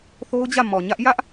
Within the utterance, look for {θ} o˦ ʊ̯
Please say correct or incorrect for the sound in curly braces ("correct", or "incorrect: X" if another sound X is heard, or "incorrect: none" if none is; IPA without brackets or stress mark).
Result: correct